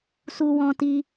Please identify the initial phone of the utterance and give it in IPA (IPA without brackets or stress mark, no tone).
s